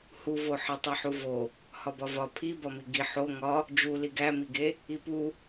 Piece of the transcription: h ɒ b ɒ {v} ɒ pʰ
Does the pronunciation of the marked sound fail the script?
no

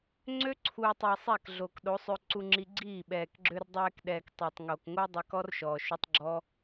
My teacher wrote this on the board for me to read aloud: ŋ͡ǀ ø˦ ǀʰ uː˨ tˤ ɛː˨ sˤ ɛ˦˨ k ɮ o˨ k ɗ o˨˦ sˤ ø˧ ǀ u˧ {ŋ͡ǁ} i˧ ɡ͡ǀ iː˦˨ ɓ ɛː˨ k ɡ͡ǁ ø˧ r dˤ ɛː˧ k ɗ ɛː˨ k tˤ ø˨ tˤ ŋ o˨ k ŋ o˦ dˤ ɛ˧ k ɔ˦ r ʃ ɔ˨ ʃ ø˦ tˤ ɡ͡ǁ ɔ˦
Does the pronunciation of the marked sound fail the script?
no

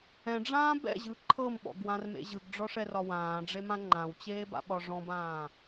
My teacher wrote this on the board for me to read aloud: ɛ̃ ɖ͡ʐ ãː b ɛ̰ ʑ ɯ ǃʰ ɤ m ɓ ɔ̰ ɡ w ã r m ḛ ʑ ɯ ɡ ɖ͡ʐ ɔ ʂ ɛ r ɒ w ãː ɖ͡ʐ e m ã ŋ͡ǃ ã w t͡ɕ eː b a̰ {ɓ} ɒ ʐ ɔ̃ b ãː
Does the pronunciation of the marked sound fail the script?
no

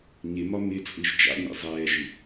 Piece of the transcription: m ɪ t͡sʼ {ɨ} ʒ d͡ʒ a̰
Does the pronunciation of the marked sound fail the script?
no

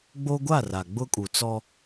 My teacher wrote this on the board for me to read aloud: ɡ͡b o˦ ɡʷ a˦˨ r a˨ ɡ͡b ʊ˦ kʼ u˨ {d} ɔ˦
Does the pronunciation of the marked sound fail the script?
yes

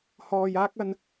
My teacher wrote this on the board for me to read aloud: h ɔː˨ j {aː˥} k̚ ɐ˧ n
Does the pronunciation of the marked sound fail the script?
no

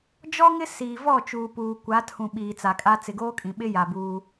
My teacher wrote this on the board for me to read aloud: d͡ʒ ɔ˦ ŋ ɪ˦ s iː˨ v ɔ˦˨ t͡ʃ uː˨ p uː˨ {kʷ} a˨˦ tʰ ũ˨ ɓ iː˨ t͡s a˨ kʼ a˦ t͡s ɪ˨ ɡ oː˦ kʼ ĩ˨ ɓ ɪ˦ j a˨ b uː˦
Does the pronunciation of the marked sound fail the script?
no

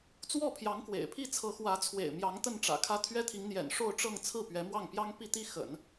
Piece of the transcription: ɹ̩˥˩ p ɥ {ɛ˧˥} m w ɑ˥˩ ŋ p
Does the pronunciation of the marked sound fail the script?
no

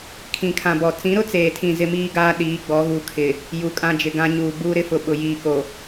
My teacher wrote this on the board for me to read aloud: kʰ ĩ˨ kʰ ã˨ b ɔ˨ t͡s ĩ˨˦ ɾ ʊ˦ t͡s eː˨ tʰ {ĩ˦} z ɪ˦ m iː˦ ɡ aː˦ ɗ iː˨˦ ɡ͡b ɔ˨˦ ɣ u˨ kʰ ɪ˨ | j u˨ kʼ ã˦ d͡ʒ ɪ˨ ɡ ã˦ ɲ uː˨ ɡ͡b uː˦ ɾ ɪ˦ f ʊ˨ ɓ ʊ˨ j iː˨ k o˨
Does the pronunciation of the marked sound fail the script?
yes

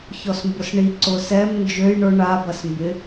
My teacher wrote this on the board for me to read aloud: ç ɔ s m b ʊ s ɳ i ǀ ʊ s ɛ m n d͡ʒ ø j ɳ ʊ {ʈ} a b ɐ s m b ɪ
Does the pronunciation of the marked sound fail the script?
yes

